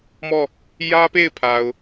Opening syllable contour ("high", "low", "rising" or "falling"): falling